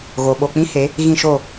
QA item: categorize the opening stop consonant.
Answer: implosive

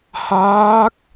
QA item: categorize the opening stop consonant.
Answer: plain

